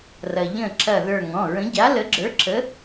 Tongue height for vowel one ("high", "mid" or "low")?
low